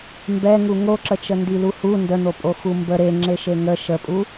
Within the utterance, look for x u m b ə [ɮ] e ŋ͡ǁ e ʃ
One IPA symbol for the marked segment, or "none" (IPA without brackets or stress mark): ɾ